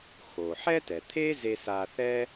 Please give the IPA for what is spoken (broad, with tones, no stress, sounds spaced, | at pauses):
x o˩ ħ ɛ˥ t ɛ˩ t̪ʰ e˥ z e˧ s a˧ θ ɛ˥